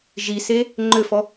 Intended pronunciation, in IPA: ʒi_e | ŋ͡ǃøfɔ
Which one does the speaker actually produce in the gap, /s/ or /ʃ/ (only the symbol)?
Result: s